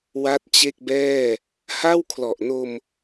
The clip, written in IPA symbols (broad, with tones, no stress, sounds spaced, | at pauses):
w a˥˩ t̚ t͡ɕ e˥˩ k̚ b ɛː˥˩ | h a˥˩ w kʰ l ɔ˨˩ ʔ n o˧ m